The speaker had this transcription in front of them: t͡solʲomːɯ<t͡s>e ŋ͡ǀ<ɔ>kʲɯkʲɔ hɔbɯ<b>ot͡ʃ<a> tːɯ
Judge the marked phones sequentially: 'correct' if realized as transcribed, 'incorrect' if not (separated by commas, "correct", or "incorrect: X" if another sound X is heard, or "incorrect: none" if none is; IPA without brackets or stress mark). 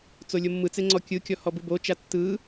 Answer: correct, correct, correct, correct